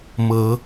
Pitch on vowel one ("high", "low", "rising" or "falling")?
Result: rising